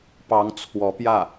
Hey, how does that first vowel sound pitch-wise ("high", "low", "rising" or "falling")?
rising